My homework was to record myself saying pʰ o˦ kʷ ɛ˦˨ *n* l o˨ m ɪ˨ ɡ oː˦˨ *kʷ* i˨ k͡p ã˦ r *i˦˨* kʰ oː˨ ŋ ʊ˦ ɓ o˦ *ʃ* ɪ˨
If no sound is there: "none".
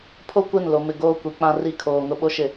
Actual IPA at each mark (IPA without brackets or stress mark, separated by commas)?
n, kʷ, i˦˨, ʃ